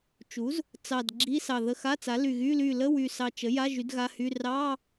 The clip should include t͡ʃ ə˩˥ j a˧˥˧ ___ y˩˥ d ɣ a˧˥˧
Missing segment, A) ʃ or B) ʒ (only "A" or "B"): B